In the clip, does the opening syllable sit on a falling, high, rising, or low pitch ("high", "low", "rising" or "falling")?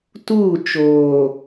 falling